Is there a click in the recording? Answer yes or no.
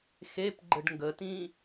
yes